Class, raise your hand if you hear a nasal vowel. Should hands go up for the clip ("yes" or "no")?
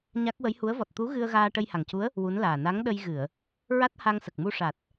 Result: no